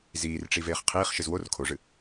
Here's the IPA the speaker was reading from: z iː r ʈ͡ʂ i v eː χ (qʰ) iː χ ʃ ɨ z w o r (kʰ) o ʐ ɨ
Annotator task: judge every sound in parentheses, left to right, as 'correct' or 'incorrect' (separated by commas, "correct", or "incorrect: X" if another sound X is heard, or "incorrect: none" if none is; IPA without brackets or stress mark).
correct, correct